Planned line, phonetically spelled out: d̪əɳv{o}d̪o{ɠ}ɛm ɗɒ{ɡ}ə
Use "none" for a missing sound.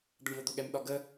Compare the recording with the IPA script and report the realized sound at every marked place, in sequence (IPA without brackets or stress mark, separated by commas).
o, ɠ, ɡ